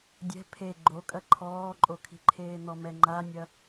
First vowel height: mid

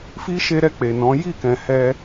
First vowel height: high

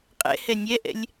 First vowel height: mid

